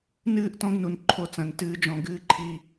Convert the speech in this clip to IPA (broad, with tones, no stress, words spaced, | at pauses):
nɨː˦˨ʔtɔ̃˦ɡ nu˨nǃʰo˦t͡sɐ̃˨˦n tɨː˦d͡ʒɔ̃˦ ɡɨː˦ǃʰi˦